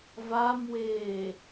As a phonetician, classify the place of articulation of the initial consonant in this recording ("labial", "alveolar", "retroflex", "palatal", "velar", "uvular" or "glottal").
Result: labial